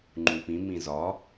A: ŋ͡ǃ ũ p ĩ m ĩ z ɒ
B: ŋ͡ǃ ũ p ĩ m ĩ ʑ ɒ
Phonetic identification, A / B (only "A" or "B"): A